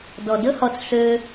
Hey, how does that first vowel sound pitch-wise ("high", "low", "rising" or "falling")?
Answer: low